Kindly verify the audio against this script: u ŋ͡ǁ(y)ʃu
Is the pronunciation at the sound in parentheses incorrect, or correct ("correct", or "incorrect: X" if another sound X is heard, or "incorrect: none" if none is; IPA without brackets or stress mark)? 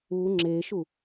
incorrect: e